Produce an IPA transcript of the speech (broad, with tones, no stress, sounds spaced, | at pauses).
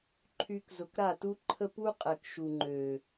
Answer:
ǃʰ y˧ k z ʊ˨ k ɾ a˦˨ t u˦ ǃʰ ə˦ p u˦ qʼ ɛ˨ k ʃ u˨ ŋ͡ǃ ø˨